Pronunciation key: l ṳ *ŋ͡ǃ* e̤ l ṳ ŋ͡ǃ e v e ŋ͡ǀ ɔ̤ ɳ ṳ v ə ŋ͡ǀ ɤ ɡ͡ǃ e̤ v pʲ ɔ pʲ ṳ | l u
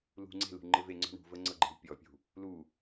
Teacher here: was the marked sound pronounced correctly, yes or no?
no